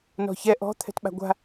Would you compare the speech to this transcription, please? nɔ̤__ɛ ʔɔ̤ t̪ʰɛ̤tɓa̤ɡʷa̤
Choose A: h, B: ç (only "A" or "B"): B